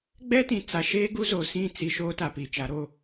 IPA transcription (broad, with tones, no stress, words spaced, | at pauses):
ɡ͡bɛ˦tĩ˨ t͡sa˨ʃeː˦ ɡu˦zo˨sĩ˦˨ t͡si˨ ʃoː˦ta˨pi˨t͡ʃa˨˦ ɾo˦